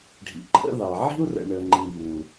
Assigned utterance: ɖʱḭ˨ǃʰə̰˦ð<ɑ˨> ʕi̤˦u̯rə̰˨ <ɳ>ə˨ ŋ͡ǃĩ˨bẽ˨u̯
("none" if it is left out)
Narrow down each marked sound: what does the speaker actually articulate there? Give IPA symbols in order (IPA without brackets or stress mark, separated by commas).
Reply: ɑ˨, ɳ